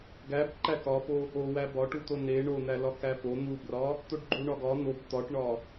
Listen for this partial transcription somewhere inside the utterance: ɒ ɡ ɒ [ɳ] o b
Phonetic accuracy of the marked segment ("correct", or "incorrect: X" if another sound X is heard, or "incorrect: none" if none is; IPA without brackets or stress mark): incorrect: n̪